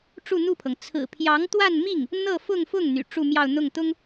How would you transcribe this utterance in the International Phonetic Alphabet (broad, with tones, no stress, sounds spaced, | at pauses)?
ʈ͡ʂ u˥˧ n̪ u˥˩ pʰ ɤ˩ ŋ t͡sʰ ɹ̩˨˩ pʰ j ɑ˧˥ ŋ t̪ w a˥˧ n m i˥˩ ŋ | n̪ ɤ˥˧ f ʊ˥˧ ŋ f ʊ˥˩ ŋ n̪ y̰˨˩ ʈ͡ʂ u˥˧ m j ɑ˥˧ ʊ̯ n̪ ʊ˥˩ ŋ t̪ ʊ˥ ŋ